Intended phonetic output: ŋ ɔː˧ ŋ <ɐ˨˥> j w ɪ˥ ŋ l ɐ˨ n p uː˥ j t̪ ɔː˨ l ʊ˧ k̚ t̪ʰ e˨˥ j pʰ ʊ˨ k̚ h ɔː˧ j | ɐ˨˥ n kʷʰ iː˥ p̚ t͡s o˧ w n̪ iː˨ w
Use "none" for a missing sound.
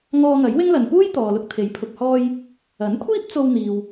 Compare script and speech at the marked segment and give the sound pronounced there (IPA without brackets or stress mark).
ɐ˨˥